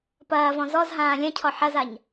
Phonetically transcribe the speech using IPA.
pɐːvɔ̃ zɔzɦãː lʲɐ̃cʰɔ ħɐzaɲ

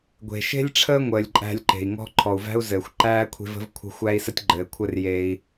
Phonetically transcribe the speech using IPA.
ɡʷe̤˩ ʃe̤˦lʲʈ͡ʂʰəː˦ŋʷəː˩lʲǃʼæ̤˨lʲ ǃe̤˩i̯ŋɔ̤˦ ǃʰɔ˩u̯væ̤˥u̯zɘː˩xʷ ǃæː˥kʷʰe̤˦və̤˥vkʷʰə̤˦ xʷæ˥i̯sə˥tʲɡ͡ǃɘː˨kʷʰɘ˥r je˨i̯

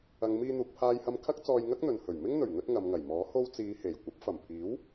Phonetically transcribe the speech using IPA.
ɐ˨˧ŋmiː˧n̪uː˨k̚ pʰaː˧jhɐ˧m kʰɐ˥k̚ t͡sɔː˧jŋɐ˥k̚n̪ɵ˨nhɵ˨˩ɥ mɪ˥ŋn̪ɵ˨˩ɥ ŋɵ˥t̚ŋɐ˨˧mŋɐ˨˩j mɔː˨˥ ho˧wt͡siː˨˧he˨˩j kʷɐ˨˥p̚fɐ˨˩mpʰiː˨˥w

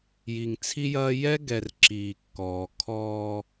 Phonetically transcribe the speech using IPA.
ji˨ŋt͡sʰi˦jɐː˦ jɛ˦ɡɛ˨r ǁiː˨kːɔː˨ kʰɔː˦

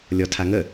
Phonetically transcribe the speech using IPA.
lʲɔtʰaŋə

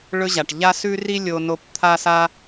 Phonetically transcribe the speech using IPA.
ɭɵ˦ʑa˨ʈ ʎa˥ sʉ˥ri˥ lʲo˥no˥p t̪ʰa˥sa˥

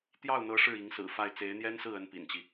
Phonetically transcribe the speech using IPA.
t̪jɑ˥˩ʊ̯n̪ɤ˧˥ ʂɻ̩˥˩i˧˥ŋsɹ̩˨˩fa˥˩ɪ̯ t͡se˧˥ɪ̯n̪jɛ˥nsɹ̩˥˩ ə˥npḭ˨˩nt͡ɕi˦

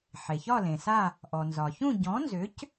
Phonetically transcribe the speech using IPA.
ħe˩ çɒ˥˧lẽ˩sa˥˧ | ʔɔ˩nzɒ˩çũ˥˧ ɟɔ̃˨˥nzʏ˨˥c

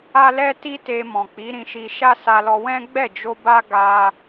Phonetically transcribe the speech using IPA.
a˦ lɛ˦ti˦ te˧mɔ̃˨ k͡pi˨˦ɾĩ˧ʃi˧ ʃa˦sa˧lɔ˧ wɛ̃˦ ɡ͡bɛ˦˨d͡ʒo˧ ba˦ ɡa˦

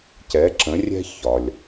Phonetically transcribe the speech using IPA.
cɛ˩˥ǁə̃˩˥rʲɛ̤˥ çɒ˩lʲ

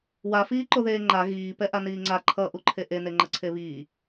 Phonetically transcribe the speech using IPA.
wafiːǃoðeː ŋ͡ǃa ɣiː pɛʔaniːŋ͡ǀa ǃʰʌ ʔuǃʰeʔene ŋ͡ǃʌǀʰeβiː

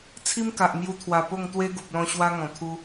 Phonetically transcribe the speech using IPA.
t͡sʰi˦mka˨ʔ mju˧t̪ʰwa˨˩po˥˧ŋt̪we˦ ɡu˨p̚lɔ̃˧ ɕwa˦ ŋɔ̃˨˩t̪ʰu˦

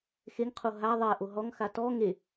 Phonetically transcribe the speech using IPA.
xeŋqʰo ɦa ðˤɛ ʔoɦɔŋxa tɔ ŋe

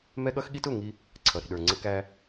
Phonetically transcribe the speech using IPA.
mɛ˦ɠʌ˦xɠi˦t ʊ˦˨ ŋi˦ | ǀʰʌ˨ɾi̤˨ɗə˞˨ ŋ͡ǀə˦kæ˦

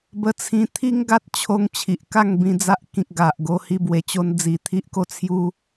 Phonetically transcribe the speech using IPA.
bə˧t͡sʰĩ˧ t̪ʰi˦ŋɡa˦t̚t͡ɕʰo˧ŋ t͡ɕʰi˨ʔka˥˧ŋbĩ˧d͡za˦ʔ kĩ˨k̚ɡa˨ʔɡo˧ hi˥˧bwe˧t͡ɕo˦nd͡zi˧ t̪ʰi˦ʔ ko˦t͡sʰju˦

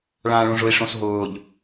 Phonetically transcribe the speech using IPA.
ɭãːɭõʐʊi̯ ʂõsɦʊːʎ

